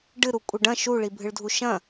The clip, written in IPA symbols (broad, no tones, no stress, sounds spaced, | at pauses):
ɖ ɨ ɾ u kʷʼ ɪ ɖ ɐ̃ ʃ u ɭ i bʱ ɨ ɭ dʱ u ʃ ɐ̃